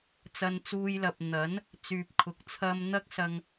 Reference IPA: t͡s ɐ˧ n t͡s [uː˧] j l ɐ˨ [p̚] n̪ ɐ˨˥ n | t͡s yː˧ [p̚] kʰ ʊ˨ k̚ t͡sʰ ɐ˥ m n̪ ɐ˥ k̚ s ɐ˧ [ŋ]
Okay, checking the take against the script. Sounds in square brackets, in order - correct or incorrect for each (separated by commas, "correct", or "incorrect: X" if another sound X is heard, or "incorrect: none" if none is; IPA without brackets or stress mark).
correct, correct, correct, correct